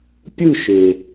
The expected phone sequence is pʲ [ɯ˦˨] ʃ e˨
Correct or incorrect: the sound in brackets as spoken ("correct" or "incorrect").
correct